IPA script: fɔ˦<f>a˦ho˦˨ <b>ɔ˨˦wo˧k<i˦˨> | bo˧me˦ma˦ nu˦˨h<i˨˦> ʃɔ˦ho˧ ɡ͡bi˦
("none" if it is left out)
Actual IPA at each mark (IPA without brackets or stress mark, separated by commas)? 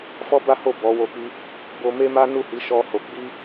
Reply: b, b, i˦, i˨˦